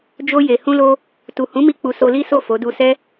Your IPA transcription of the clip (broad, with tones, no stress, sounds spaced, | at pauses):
d͡ʒ o˧ j e˨ h ũ˧ l o˧ | t u˨ h ũ˨˦ m i˧ k͡p u˨ s o˧ l i˦ s o˦˨ f o˨˦ d u˧ s ɛ˦